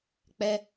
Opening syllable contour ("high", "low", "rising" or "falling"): high